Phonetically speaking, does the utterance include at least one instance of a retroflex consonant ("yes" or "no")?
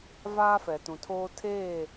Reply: no